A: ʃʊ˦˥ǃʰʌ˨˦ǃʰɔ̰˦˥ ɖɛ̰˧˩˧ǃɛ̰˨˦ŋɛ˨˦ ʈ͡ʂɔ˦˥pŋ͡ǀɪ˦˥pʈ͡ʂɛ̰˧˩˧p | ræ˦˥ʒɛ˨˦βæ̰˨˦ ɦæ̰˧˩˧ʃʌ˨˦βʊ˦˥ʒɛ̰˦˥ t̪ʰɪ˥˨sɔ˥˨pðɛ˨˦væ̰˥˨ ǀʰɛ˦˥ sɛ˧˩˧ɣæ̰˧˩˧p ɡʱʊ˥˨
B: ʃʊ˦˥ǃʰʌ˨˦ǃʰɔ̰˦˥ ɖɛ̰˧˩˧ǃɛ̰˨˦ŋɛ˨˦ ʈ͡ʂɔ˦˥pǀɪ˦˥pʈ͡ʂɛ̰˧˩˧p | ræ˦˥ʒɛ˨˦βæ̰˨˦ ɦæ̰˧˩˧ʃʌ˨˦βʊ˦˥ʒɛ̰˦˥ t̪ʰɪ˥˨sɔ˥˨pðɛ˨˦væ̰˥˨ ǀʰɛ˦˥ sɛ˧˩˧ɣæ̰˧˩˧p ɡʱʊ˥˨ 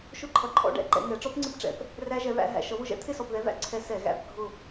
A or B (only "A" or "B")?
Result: A